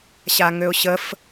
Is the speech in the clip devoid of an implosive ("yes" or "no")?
yes